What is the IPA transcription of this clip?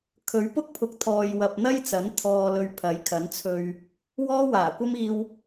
kʰ ɵ˨˥ ɥ p ʊ˥ k̚ pʰ ʊ˨˥ k̚ t̪ʰ ɔː˨ j w ɐ˨ p̚ n̪ ɐ˥ j t͡s ɐ˨˥ n t̪ʰ ɔː˧ l ɵ˧ ɥ pʰ ɐ˨˥ j kʰ ɐ˨˥ n t͡sʰ ɵ˧ ɥ | w ɔː˥ w aː˨˩ kʷ ɐ˥ m iː˧ w

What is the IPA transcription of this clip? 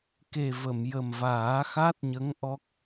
k e˨˩ v ə˨˩˨ m j ə˨˩ m v aː˨˩˦ x a˦˥ t̚ ɲ ə˧˥ ŋ ʔ ɔ˦˥ k̚

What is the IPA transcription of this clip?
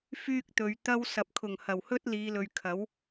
f yː˥ k̚ t̪ ɵ˨˧ ɥ t̪ ɐ˥ w s ɐ˨ p̚ kʰ ʊ˨˩ ŋ h ɐ˨˩ w h ɵ˥ t̚ l iː˨˧ l ɵ˨ ɥ kʰ ɐ˨˥ w

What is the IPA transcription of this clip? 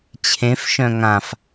t͡ɕʰ ẽ f ʃ œ̃ ŋ ã f

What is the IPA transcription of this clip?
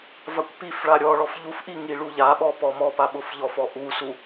v a kʷ p i f ɭ a ɾʲ ɔ ɭ ɔ f ʎ u f ʔ i ŋ i ɭ u ʎ a ɓ ɔ p ɔ m ɔ p a ɓ ʊ f ʎ ɔ f ɔ ʔ u s u

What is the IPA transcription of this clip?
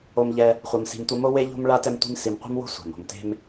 o˨ m ʎ ɛ˨ | χʷ ɐ˨ m s i̤˨ m tʷ ɐ˦ m o˥ w e˥ ʎ o̤˥ m ɭ a˥ t ɛ˦ m tʷ i̤˦ m s i˨ m qʷ e̤˥ m w o̤˥ sʷ a̤˩ m o̤˨ m t e̤˦ m

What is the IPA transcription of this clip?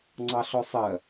ŋ͡ǀ ɑ ɬ ɔ sˤ ɜ

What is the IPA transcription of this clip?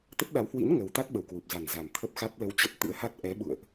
t̪ ə˦˥ t̚ ɗ a˨˦ w h w ḭ˧˥ n ŋ ə˨˦ w t̪ a˦˥ t̚ ɓ ə˨˩ w k w u˨˩ p̚ z a˨˩ n z a˨˩ m t̪ʰ ə˦˥ p̚ x a˦˥ t̚ l ə˧ w t͡ɕ ə˦˥ p̚ t̪ ɨ̰˧˥ ə̯ h a˦˥ t̚ ʔ ɛ˨˦ ɓ ṵ˧˨ ə̯ ʔ

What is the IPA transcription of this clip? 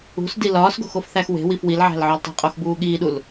ṳ s d i l ɒː s ɡ o̤ x o f θ æ x w e̤ w i f w i l ʕ æ̤ l ʕ ɒ l tˤ e̤ qʼ o x b uː ɠ iː ɗ u l

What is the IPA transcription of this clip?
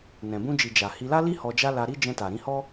n ɛ̃˨ b ũ˧ d͡ʒ i˨ d͡ʒ a˨ h i˧ l a˦ l i˦ h ɔ˧ d͡ʒ a˦ l a˧ ɾ i˦ d͡ʒ ɛ̃˧ t a˨ ɾ ĩ˨˦ h ɔ˦

